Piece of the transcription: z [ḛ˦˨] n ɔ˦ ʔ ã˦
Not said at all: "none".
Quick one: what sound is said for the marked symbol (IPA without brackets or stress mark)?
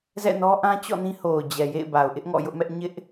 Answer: ɛ̰˦˨